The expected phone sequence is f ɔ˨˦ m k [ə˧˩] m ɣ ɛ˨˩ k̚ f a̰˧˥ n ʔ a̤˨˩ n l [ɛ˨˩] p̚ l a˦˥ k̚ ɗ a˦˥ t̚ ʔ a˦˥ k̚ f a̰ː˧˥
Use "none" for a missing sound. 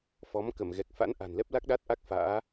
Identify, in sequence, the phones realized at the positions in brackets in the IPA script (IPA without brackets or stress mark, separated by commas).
ə˧˩, ɛ˦˥